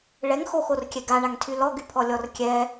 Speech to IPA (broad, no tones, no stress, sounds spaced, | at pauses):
ɭ ɛ ŋ x o x o r kʲ ɛ ɡ a ɳ a ŋ tʰ y l ɔ ɡ y pʰ ɔ lʲ ɔ r kʲ ɛ